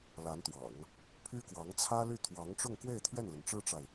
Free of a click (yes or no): yes